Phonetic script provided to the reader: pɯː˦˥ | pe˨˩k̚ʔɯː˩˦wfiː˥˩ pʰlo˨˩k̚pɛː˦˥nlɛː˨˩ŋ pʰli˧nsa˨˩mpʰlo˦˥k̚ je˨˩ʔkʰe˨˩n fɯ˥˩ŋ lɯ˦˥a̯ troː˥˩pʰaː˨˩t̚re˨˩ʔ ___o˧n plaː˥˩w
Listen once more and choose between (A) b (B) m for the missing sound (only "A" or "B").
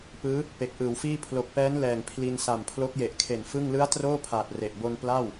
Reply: A